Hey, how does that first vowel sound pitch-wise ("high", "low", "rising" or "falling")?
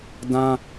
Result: high